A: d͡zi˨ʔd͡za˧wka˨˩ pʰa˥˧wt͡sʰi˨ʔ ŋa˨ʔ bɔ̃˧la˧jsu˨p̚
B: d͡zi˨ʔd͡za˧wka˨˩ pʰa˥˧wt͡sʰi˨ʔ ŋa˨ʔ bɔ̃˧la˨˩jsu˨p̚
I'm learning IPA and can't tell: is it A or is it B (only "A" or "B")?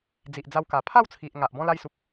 A